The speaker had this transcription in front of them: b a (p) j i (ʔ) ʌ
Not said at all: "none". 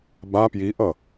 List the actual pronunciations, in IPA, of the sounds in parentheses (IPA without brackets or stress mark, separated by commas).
p, ʔ